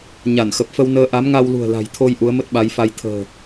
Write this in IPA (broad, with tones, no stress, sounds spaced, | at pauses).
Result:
ɲ a˧˩ n x ə˨˩ p̚ f ə˧ w n əː˧ ʔ a˨˦ m ŋ a˧ w l ṳ˨˩ ə̯ l a̤˨˩ j t̪ʰ o˧ j ʔ u˨˦ ə̯ m ə˦˥ t̚ ɓ a˨˦ j f a˧ j t̪ʰ ə̤ː˨˩